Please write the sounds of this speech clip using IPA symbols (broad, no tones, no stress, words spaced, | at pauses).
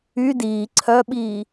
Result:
y diː ǀʰœɓiː